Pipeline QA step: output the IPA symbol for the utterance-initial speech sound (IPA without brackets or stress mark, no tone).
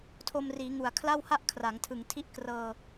tʰ